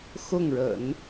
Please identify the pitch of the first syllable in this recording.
falling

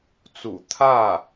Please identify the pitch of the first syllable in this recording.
low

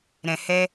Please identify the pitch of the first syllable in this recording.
low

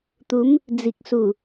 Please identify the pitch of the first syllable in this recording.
rising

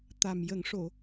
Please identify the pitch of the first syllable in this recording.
low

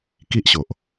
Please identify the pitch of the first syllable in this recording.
high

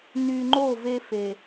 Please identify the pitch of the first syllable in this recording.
low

